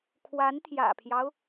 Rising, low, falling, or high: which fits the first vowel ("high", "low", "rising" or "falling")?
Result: rising